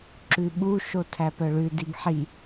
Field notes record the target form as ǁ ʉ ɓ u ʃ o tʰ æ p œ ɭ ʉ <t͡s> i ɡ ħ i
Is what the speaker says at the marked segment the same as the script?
no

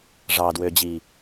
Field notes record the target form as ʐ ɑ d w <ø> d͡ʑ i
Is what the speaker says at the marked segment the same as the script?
yes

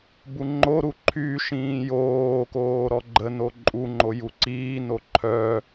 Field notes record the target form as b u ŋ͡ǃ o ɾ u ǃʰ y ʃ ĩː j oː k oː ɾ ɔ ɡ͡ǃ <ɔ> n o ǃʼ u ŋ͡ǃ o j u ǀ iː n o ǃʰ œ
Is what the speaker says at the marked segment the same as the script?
no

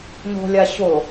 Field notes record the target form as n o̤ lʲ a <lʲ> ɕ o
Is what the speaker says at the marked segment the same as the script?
no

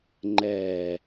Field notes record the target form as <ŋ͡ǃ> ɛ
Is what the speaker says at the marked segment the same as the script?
yes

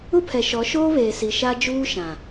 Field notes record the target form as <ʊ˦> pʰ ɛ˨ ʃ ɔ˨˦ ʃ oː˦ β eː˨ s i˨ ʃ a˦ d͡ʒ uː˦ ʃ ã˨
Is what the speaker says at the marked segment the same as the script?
yes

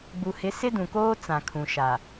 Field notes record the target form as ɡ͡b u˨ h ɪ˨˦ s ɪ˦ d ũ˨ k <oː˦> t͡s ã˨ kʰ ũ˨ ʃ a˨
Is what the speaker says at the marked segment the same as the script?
yes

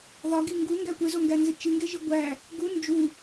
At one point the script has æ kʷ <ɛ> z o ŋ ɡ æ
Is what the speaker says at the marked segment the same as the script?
no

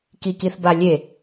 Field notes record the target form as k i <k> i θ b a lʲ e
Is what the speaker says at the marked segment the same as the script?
yes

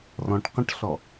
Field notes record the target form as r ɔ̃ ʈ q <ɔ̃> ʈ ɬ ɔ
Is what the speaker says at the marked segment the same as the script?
no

